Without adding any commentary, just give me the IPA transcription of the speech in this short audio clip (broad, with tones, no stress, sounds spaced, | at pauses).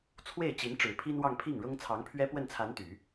t͡sʰ w e˥˩ ɪ̯ t͡ɕ i˧˥ n ʈ͡ʂ ɻ̩˨˩ pʰ i˥ n w ɑ˥˧ ŋ pʰ i˥˩ ŋ ɻ ʊ˥ ŋ t͡sʰ ɑ˧˥ ŋ pʰ ɥ ɛ˥ p w ə˥˩ n t͡sʰ a˧˥ n t̪ y˨˩˦